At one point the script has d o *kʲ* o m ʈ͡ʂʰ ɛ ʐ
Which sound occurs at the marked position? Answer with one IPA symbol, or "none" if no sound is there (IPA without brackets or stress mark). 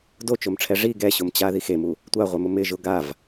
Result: t͡ʃ